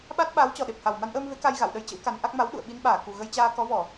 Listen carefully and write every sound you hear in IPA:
ɓ a˦˥ t̚ ɓ aː˨˦ w t͡ɕ ɔ˨˩ ɗ e˨˩ p̚ h a˨˩ w m a˧ n ʔ əː˧ m v e˨˦ k a˧ j ɣ a̰˧˨ w ɗ ə˧ j t͡ɕ ə̰˧˥ w k a˨˦ n ʔ a˦˥ k̚ m a˨˦ w ɗ ṵ˧˨ ə̯ ɓ i˧ n ɓ aː˧˩ k u˨˩ ɣ ə˧ j t͡ɕ aː˧ k ɔ˨˦ v ɔ˧˩˨

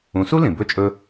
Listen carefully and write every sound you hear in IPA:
ũ˩˥ s u˥ l ĩ˩ b ɵ˥˩ t͡ʃʼ ɵ˧

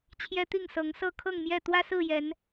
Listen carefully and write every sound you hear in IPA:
t͡ɕʰ j ɛ˦ t̪ i˥˨ ŋ s ɤ˨˦ ŋ s ɤ˥˨ kʰ ɤ˥˨ ŋ m j ɛ˥˨ t̪ w ä˦ s ɹ̩˥˨ j ɛ˨˦ n

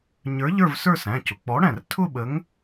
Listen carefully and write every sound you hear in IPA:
ɲ ə˞˨˥ ʎ ə˞˥˧ v s ə˞˥˧ s æ̃˩˧˩ c ʊ˩˧˩ k͡p ɔ˨˥ ɽ æ̃˧˩ r tʰ ʊ˥˧ ɓ ə˨˥ ŋ

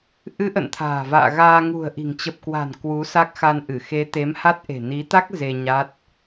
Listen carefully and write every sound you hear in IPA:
ʔ ɨ˨˦ ʔ ə̰˧˨ n t̪ʰ a̤ː˨˩ v a̰ː˧˨ ɣ aː˧ ŋ ṳ˨˩ ə̯ ʔ i̤˨˩ ŋ t͡ɕ ə˨˩ p̚ k w a̤˨˩ n k w u˨˦ s a˦˥ k̚ x a˧ n ʔ ɨ˧˩ x e˨˦ t̪ e˨˦ m h a˦˥ t̚ ʔ e̤˨˩ n i˨˦ t̪ a˦˥ k̚ z e˧ ɲ a˦˥ t̚

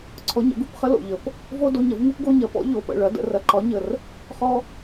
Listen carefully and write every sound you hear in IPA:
ǀʰ ɔ˩˧˩ ɲ ə̰˩˥ ɡ u˩ p χ ə˦ l o̰˩ ʎ ə˩˧ p | v o˦ d o˩˧˩ ɲ ɐ˦ v ŋ u˦ p ɡ o˦ ɲ ɐ˩˥ p ɔ̰˩˥ ʎ o˩˧˩ p ə̰˩˧˩ ɭ ɐ˩˥ d ə̰˩˧ r ɐ˩˧ ǃ ɒ˩˥ ɲ ə˩ r | χ ɔ˦

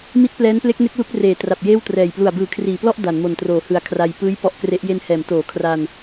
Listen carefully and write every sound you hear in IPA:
m i˦˥ t̚ p l ɛː˦˥ n p l e˦˥ k̚ n e˦˥ k̚ l u˦˥ k̚ r eː˩˦ t r a˨˩ p̚ j eː˥˩ w t r ɛː˨˩ j p l u˨˩ a̯ b ɯː˨˩ kʰ r iː˩˦ p l ɔ˥˩ ʔ d a˩˦ n m o˨˩ n t r oː˩˦ h ɯ˨˩ a̯ kʰ r a˧ j p ɯː˦˥ j p ɔ˦˥ ʔ k r e˦˥ ʔ j e˧ n h ɛː˩˦ m t oː˩˦ kʰ r a˧ n

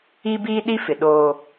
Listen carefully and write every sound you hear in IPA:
i˦ b iː˦ ɗ i˦ f ɪ˨ ɗ oː˦

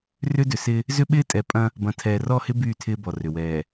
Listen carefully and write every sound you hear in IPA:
r ʏ˦ d ʏ˨ s ɪ˦ | z ʏ˦ ɓ ɪː˦ tʼ ɛ˨ pʼ ɐ̃˦ | b ɐ̃˨ tʰ ɛː˨ r ɔ˦˨ h ɪ˦ b yː˦˨ tʰ ɪː˦ b ɔ˨ r ʏ˨ w ɛː˨

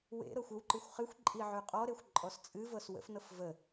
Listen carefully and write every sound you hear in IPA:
w ḛ ɾ ɤ xʷ ʏ w ǃ ɨ xʷ χ ɨ xʷ ǃʼ i ʕ y qʼ ɔ ɾ e xʷ ǃʼ ɔ s t͡sʼ ɨ v ɤ s w ə̰ f n ɤ f v ə

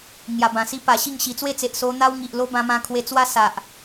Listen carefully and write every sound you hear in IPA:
ŋ j a˨˩ b ã˨˩ s i˦ p a˨˩ ɕ i˥˧ ŋ ɕ i˨˩ t͡s w e˥˧ t͡s e˨ ʔ s o˧ n̪ a˦ w ŋ i˨ ʔ l o˦ b ã˧ m ã˧ kʰ w e˧ t͡s w a˦ s a˨ ʔ

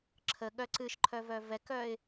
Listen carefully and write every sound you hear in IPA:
ǁʰ ə ɠ œ ǀ ɨ ʃ ǃʰ œ v œ v ɛ k œ ɪ̯

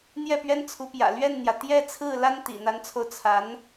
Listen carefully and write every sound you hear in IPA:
n̪ j ɛ˥˩ p ɥ ɛ˥ n t͡sʰ u˧˥ p j ä̰˨˩ l ɥ ɛ˥˩ n n̪ j ä˩ t̪ j ɛ˥˧ t͡sʰ ɹ̩˥˩ l a˥ n t̪ ḭ˨˩ n̪ a˧˥ n t͡sʰ o˧ ʊ̯ t͡sʰ a˧˥ n

